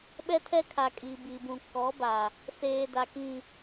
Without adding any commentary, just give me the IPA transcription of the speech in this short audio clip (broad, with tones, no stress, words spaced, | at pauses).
ɓɛ˦tʰɛ˦kʰa˨ kʼi˨bi˨bũ˨ kɔ˨˦ba˨ | seː˨ da˨kĩ˨